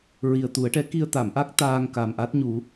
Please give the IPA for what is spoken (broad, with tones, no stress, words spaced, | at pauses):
ɹi˨˩ə̯t̪u˨˩˦ə̯ʈɛ˧˥ ki˧ə̯t̪a˨˩˨mʔa˦˥k̚ t̪aː˧ŋka˨˩m ʔa˦˥t̚ɲu˨˩˦